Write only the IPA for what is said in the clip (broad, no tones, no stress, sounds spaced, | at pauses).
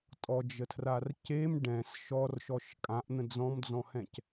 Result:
tʼ ɔ d͡ʒ ə tʰ r a r c e m ɖ ɛ̃ s ʃ ɔ r ʃ ɔ ʃ kʼ ã ʔ n̪ ə̃ d͡z ɔ̃ m d͡z ɔ̃ h ɛ̃ c